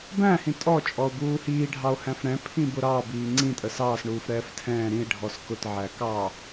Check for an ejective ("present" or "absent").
present